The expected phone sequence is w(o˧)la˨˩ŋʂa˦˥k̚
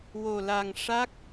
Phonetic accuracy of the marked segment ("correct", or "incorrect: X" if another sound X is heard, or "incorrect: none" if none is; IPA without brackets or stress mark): incorrect: o˨˩